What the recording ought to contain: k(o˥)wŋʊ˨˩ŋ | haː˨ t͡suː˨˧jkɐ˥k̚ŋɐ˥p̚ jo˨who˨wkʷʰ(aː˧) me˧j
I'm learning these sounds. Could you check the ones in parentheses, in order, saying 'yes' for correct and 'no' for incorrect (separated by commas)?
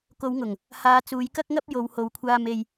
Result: no, yes